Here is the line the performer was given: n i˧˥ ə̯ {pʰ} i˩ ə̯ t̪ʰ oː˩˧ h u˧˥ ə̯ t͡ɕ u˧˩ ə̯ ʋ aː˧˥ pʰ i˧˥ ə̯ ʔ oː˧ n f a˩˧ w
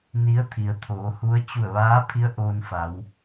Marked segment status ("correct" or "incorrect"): incorrect